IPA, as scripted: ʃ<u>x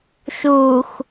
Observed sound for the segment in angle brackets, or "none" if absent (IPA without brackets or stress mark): u